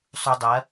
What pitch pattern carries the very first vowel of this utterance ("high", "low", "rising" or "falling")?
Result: low